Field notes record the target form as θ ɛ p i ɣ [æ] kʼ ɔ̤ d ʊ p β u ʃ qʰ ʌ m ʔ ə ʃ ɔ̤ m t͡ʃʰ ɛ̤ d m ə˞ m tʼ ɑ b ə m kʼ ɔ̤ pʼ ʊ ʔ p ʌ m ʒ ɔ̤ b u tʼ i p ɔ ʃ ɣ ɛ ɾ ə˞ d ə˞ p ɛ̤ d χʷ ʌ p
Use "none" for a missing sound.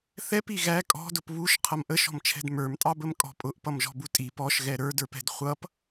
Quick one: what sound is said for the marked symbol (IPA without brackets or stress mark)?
æ